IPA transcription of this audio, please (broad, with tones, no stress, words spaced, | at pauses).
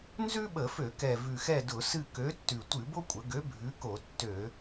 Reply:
nzʉ˥ɓə˧˩˧fø˧˩˧kɛ˨˩ vʉ˨˩xɛ˦˨dʊ˧˩˧sɨ˦˨ kø˨˥tːʉ˨˩ tʷɨ˧˩˧bo˥kʷʼə˩˧ɡø˨˥ bʱʉ˨˥ko˧˩˧tːø˧˩˧